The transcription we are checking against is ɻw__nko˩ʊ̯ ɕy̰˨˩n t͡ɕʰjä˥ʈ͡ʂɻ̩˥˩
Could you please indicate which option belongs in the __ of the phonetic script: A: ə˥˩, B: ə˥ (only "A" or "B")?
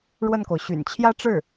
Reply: A